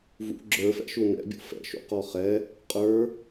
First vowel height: high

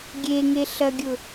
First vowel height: mid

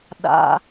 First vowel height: low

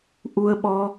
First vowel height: high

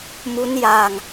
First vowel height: high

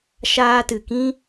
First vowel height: low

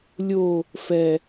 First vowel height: mid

